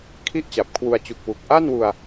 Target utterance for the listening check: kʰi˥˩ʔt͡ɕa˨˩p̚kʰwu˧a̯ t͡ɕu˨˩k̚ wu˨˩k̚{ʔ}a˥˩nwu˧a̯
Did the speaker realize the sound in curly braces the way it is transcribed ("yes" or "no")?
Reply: yes